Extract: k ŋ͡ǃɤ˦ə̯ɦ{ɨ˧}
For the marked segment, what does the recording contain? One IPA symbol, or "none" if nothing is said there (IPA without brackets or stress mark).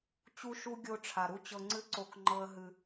ɨ˧